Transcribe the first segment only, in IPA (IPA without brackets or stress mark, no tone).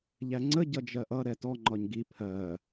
ʎ